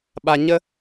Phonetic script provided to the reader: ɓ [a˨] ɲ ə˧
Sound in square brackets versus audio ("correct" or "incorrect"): correct